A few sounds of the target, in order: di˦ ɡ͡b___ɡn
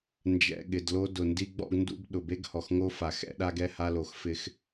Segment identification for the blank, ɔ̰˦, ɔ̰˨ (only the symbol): ɔ̰˦